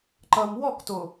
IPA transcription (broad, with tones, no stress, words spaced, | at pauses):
ǃʌ˨m wɔ˦˨kto˨